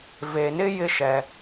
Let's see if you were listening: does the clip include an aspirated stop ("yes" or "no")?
no